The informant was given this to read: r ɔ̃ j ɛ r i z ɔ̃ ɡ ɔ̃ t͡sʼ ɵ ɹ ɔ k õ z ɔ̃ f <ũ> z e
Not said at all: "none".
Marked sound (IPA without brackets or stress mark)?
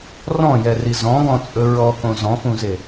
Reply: ũ